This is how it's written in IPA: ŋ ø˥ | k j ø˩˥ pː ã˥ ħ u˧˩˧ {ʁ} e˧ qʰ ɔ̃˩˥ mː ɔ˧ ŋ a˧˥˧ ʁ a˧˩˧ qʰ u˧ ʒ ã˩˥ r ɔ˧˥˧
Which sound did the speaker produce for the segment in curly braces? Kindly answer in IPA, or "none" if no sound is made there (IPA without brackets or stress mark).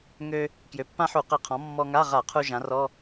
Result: q